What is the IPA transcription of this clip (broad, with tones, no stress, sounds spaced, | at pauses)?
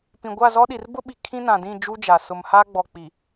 p ĩ˨ ɡʷ a˦˨ z ɔ˦ ɗ i˨ r b ʊ˦ ɓ i˨ kʰ ĩ˦ n ã˨ d ĩ˦˨ d͡ʒ u˦ d͡ʒ a˨ s ʊ˨ m h a˦ ɡ͡b ɔ˨ k͡p i˨